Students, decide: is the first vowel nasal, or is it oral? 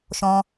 nasal